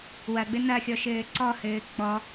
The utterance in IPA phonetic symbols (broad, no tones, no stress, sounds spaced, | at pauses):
w ɐ ɡ͡b ɘ n ɐ xʲ ɔ ʃ ɘː ǀ ɔ h ɘː k͡p ɔ